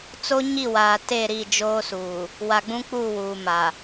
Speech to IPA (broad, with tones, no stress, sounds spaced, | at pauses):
t͡s o˦ ɲ i˦˨ w aː˨ t e˦˨ ɾ i˦˨ d͡ʒ oː˦ s uː˨ | w a˨ ɡ͡b ũ˦ k͡p uː˦˨ w uː˨ m a˨